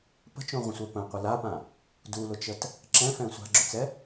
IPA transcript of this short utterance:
p ə̤ t͡ʃ õ ʁʷ ə̃ sʷ œ p ə̃ qʷ ə l a p ã | d u l ʊ t͡ʃ ə t | ǁ ɛ̃ f ɛ̃ sʷ a̤ ɡ͡ǁ ʊ t͡s ɛ

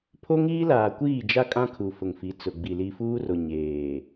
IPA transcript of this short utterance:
pʰ o˦ ŋ iː˦ l aː˨ kʷ iː˦˨ d͡ʒ a˦ kʼ ã˦ kʰ u˨ f ʊ˨ ŋ f i˨˦ t͡s ʊ˨ ɡ͡b i˨ l i˨ f uː˦ r o˨ ɲ eː˨

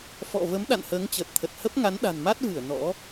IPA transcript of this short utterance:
f ɔ̰˧˨ v ə˨˦ m ɗ a̰˧˨ n h əː˨˦ ŋ t͡ɕ əː˨˩ t̚ t̪ʰ ə˨˩ t̚ h ə˦˥ p̚ ŋ a˨˦ n ɗ a̤˨˩ n m a˦˥ t̚ v ɨ˧˩ ə̯ n ɔ̰˧˥

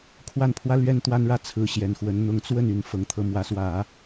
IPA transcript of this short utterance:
kʰ w a˥˩ n pʰ w ä˥ l ɥ ɛ˥ n t̪ w a˥ n ɻ ä˥˩ t͡sʰ ɹ̩˧˥ ɕ j ɛ˨˩ n x w ə˧˥ n n̪ ʊ˧˥ ŋ t͡s w ə˥˩ n y˨˩ n f ɤ˧˥ ŋ t̪ʰ ɤ˧˥ m w ä˧˥ s w ä˨˩˦

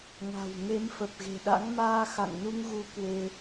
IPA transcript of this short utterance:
ŋ a̤˨˩ w ŋ e˨˦ m f ə˨˩ p̚ ɣ e̤˨˩ ɗ a̰˧˥ ŋ m aː˧ x a̰˧˨ ŋ n u˧ ŋ ɣ u˨˦ k w e˧

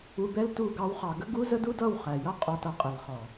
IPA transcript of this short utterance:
u˧ b ɛ˦ l t u˦˨ ɡ ɑ˦ w χ ɑ˧ ɡ ə˦ ɡ u˦ z ə˦ d u˦ d ʌ˦˨ w χ æ˨ j ʌ˦ qʼ ɔ˧ t ʌ˦ qʼ ɛ˨ l χ ɔ˨

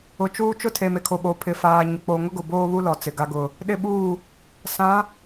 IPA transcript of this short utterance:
ʊ˨ t͡ʃ uː˦ t͡ʃ ʊ˦ tʰ e˨ m e˨ kʰ o˨ ɓ o˨ pʰ ɪ˨ f aː˨ ɲ ʊ˨ k͡p o˨ ŋ ʊ˦ ɡ ʊ˨ b oː˦ β u˦ l ɔ˨ t͡s ɪ˨ ɡ a˦ ɡ ʊ˨ | ɗ ɪ˦ ɓ uː˦˨ | s ã˨˦

